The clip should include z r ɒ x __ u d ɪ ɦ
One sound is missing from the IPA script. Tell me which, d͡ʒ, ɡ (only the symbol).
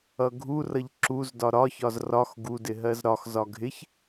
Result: ɡ